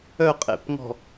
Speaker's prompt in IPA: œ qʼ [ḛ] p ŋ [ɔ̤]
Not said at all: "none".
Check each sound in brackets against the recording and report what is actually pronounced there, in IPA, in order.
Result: ḛ, ɔ̤

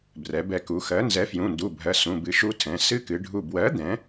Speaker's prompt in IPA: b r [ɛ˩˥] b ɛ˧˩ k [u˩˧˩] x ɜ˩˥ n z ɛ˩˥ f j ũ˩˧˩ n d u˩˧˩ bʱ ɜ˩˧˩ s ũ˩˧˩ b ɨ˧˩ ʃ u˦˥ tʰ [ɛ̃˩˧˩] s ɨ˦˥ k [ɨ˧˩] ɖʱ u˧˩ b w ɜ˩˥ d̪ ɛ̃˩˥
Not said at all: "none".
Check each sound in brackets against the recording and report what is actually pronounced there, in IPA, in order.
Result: ɛ˩˧, u˩˧, ɛ̃˩˧˩, ɨ˩˧

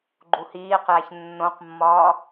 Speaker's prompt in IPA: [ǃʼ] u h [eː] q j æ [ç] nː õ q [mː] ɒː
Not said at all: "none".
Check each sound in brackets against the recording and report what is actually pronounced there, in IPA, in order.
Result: ɡ͡ǃ, iː, ç, mː

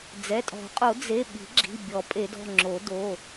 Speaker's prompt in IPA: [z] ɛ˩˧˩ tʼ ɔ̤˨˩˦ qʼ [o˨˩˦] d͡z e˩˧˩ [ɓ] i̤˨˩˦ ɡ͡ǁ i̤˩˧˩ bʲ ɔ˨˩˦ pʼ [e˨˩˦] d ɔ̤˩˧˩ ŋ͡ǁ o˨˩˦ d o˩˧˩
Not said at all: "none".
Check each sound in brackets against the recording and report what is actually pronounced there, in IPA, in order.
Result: d͡z, o˨˩˦, ɓ, e˨˩˦

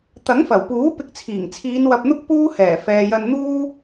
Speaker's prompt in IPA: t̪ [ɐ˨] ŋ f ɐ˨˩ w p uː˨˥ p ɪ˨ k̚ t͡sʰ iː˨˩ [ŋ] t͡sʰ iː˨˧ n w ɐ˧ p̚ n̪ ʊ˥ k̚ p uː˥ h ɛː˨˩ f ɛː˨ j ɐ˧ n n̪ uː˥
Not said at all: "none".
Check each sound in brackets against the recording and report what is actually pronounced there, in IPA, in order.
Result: ɐ˨˥, ŋ

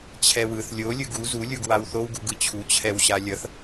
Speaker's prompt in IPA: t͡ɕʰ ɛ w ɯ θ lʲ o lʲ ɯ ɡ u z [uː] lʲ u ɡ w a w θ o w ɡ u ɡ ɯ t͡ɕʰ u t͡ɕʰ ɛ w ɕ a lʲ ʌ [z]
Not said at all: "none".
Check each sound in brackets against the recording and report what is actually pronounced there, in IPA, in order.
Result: u, θ

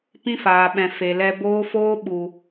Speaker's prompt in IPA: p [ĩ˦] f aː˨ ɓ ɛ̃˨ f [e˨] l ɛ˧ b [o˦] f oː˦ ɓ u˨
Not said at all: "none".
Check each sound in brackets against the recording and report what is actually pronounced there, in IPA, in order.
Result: ĩ˦, e˨, oː˦

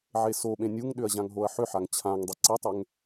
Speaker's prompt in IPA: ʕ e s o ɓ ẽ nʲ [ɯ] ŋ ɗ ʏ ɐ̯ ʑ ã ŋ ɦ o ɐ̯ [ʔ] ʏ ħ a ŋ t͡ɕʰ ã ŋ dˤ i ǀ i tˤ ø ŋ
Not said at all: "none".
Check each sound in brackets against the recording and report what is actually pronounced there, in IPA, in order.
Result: u, ħ

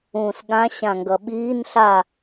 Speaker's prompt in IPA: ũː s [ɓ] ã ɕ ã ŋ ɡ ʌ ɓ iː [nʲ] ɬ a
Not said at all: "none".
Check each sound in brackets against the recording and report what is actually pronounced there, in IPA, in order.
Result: ɠ, n

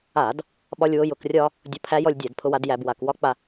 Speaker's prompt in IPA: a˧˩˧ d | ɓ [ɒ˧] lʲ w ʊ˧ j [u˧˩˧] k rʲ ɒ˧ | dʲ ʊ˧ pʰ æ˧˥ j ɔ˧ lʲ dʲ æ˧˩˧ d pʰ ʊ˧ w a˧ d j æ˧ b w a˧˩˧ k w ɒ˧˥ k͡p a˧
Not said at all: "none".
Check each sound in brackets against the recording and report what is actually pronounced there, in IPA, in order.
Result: ɒ˧, ʊ˧˩˧

